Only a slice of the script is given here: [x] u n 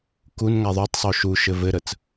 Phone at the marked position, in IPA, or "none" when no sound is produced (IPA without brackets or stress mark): k